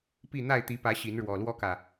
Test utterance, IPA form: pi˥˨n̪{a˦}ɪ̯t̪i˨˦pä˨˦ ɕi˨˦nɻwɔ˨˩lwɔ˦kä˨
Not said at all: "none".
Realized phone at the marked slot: a˥˨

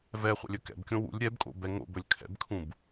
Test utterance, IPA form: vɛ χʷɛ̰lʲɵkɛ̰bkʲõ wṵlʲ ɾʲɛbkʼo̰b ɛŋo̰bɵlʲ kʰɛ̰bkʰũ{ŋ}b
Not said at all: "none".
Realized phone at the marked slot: none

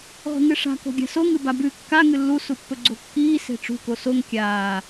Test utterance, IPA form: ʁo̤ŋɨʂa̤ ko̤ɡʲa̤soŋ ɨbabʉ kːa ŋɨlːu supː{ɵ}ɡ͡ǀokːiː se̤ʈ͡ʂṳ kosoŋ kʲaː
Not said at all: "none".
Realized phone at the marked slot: ɵ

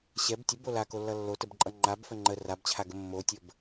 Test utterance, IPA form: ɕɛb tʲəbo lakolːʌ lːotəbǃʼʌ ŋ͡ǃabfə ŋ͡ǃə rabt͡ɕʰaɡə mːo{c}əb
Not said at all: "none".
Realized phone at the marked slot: tʲ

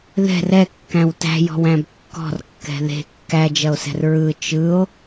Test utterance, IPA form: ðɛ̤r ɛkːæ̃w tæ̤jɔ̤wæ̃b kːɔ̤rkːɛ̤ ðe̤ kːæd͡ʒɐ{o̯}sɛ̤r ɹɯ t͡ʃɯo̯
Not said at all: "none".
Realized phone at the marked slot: o̯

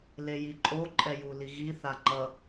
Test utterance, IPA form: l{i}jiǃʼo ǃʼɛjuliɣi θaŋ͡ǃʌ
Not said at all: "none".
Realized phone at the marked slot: e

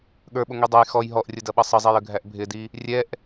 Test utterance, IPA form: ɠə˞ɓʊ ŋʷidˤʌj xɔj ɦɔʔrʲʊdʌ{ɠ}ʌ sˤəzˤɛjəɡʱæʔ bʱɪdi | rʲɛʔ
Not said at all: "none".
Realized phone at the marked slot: ɓ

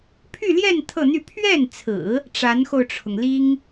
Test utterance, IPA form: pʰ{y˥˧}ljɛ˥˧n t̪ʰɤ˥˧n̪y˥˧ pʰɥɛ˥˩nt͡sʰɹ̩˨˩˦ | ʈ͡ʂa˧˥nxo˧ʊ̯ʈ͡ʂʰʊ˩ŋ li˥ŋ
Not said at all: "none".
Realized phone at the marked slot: y˥˧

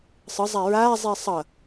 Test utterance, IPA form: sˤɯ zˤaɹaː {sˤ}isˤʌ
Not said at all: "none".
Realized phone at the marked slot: zˤ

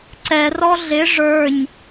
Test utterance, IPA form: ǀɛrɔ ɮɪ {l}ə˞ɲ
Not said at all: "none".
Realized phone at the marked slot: ʐ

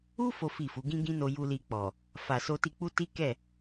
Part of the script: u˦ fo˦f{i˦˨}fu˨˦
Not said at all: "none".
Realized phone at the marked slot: i˦˨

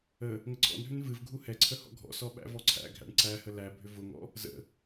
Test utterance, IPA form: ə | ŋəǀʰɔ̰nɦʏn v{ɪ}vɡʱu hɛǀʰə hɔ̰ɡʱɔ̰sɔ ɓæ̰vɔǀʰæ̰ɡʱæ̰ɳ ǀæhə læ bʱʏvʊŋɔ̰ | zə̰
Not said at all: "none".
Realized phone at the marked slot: ɨ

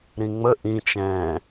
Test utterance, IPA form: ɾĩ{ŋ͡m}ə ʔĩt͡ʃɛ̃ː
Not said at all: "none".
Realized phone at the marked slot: ŋ͡m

